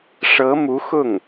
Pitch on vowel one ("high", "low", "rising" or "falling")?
rising